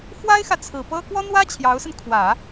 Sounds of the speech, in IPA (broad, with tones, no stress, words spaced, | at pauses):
xwa˥ɪ̯xä˨ t͡sʰɹ̩˨˩pɤ˥ kwɔ˥n̪wä˥ t͡ɕʰjɑ˧˥ʊ̯sə˧n kʰwä˨˩˦